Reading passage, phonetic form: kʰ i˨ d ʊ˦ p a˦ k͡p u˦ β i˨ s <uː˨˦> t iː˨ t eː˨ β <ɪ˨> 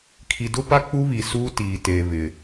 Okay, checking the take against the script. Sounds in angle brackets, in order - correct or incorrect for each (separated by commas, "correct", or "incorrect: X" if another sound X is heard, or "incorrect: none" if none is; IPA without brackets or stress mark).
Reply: incorrect: uː˦, correct